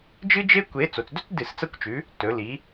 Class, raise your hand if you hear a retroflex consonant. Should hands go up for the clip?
no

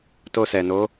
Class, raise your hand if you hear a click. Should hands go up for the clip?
no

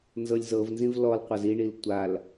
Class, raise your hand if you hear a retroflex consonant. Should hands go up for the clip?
yes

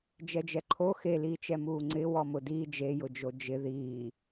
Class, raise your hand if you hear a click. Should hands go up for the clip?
yes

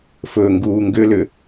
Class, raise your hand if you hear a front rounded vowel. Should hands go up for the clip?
yes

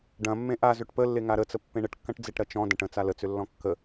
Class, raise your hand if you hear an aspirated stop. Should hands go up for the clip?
no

